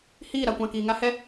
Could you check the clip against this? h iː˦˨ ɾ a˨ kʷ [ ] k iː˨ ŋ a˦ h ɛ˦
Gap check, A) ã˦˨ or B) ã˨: A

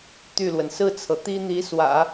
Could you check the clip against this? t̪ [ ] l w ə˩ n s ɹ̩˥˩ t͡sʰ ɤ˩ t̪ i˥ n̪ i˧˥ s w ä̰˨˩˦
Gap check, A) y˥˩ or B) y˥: A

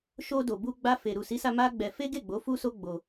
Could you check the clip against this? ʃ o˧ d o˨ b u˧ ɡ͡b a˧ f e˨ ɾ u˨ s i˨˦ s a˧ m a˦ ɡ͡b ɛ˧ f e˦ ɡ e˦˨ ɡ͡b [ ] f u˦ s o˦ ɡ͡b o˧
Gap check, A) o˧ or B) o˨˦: B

